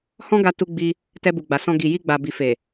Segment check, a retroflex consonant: absent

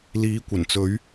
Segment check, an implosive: absent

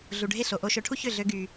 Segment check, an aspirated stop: present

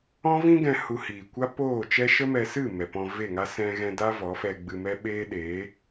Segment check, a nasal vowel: present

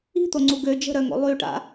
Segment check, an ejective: absent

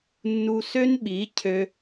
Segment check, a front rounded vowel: present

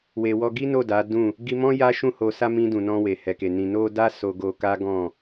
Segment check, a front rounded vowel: absent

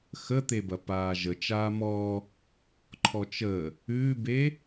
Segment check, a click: present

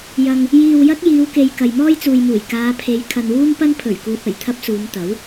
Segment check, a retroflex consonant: absent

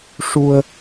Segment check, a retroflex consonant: present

